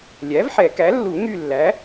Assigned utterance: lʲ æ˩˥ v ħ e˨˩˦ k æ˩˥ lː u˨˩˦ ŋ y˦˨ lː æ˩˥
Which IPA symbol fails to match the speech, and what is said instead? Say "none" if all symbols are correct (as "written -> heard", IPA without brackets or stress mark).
e˨˩˦ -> ɛ˨˩˦